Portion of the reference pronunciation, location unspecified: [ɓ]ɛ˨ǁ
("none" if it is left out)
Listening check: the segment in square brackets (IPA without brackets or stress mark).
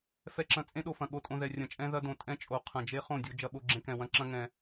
f